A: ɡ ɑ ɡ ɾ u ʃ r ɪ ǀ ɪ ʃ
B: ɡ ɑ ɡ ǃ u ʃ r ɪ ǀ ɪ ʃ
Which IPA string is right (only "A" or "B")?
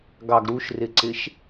A